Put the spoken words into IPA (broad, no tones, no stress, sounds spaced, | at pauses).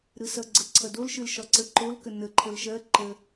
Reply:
ɾ ɯ s ʌ ɡ͡ǀ ə ǀʰ ʌ d o l ʃ ɯ l ʃ ɒ ǀ ə ǃ o l k ə n ə ǃʰ ə l ʃ ɜ ǃ ə